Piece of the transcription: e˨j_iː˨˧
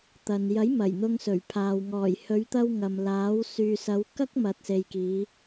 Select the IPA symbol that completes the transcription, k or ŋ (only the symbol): k